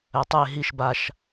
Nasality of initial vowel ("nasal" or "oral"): oral